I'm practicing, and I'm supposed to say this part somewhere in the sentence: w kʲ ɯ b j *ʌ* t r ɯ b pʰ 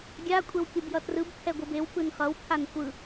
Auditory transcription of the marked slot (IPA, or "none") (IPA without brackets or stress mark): ʌ